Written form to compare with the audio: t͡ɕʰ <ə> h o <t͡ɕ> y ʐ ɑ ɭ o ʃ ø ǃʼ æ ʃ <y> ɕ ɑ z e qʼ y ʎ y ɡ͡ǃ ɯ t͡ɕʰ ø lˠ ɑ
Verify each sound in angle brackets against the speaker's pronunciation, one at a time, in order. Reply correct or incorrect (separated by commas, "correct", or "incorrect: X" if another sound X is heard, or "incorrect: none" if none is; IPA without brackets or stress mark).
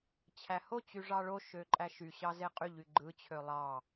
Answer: incorrect: æ, correct, correct